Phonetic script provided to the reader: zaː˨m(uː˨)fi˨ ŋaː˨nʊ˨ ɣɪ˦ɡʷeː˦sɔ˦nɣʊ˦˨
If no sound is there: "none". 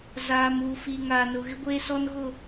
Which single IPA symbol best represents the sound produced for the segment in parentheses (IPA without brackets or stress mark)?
uː˨